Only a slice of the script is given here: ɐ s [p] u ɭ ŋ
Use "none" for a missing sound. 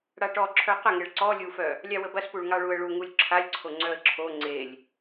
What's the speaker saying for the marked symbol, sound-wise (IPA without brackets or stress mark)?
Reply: p